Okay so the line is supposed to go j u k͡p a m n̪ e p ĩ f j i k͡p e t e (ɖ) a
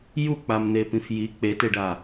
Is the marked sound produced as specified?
yes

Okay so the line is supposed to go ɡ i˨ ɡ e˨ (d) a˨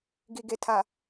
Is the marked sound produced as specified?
no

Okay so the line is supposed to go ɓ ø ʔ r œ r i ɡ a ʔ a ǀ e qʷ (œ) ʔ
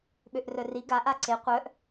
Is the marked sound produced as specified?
yes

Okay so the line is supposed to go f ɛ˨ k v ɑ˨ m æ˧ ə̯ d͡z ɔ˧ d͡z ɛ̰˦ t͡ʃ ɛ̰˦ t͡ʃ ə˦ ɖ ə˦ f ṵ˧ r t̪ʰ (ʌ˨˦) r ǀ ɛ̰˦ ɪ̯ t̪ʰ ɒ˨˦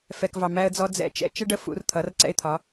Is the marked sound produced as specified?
yes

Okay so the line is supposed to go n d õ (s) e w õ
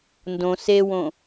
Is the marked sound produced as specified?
yes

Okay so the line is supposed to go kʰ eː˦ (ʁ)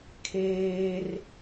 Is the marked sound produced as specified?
no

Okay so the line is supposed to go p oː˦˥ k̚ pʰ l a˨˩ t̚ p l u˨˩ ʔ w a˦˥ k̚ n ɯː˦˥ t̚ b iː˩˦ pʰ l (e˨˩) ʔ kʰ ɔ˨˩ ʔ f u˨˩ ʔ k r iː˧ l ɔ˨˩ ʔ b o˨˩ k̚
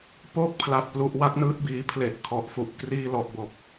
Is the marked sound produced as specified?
yes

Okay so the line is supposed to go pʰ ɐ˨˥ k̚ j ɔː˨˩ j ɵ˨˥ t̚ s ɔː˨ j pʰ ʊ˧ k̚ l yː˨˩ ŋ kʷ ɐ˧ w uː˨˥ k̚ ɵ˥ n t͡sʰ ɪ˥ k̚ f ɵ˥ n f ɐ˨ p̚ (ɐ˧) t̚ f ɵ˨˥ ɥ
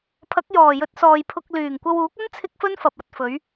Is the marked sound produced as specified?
no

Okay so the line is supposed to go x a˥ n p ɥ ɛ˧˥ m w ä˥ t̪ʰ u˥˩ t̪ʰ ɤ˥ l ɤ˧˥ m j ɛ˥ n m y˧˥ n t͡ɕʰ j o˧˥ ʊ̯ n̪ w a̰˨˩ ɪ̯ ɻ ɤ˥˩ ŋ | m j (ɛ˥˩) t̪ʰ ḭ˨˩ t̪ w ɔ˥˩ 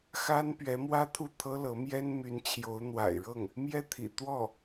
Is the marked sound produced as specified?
yes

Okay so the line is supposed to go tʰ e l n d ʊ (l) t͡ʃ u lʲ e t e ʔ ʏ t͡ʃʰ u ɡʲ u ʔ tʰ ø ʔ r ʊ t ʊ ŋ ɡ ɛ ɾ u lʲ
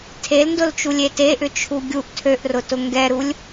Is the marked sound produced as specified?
yes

